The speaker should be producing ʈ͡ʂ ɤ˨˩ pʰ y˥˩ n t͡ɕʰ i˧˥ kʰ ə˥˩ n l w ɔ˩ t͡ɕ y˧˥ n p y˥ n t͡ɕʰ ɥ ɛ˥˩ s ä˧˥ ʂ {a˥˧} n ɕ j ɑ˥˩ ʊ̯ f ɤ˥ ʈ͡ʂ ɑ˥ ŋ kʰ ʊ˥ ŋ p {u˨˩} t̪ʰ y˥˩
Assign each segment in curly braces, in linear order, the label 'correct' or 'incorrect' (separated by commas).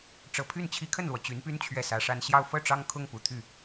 correct, correct